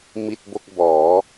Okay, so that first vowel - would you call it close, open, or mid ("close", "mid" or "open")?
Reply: close